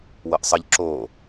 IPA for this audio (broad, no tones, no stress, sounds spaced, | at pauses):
w ɤ ʔ sˤ ə ʎ ǁ o